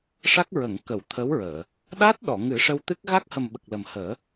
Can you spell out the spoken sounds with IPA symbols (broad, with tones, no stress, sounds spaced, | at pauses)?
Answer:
ʂ a˦˥ k̚ ɹ ə˨˩˨ ŋ k ə˨˩˨ w t̪ʰ ə˧˥ w ɹ əː˨˩˨ | ɗ a˦˥ t̚ ɗ ɔ˨˩˨ ŋ ɨ˨˩˦ ʂ ə˧ w t̪ ɨ˦˥ k̚ ɣ a˦˥ k̚ h ə˨˩ m ɓ ə˨˩ k̚ l ə˨˩ m h əː˨˩˦